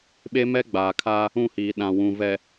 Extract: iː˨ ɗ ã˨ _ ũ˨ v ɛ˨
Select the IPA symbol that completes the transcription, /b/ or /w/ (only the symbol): w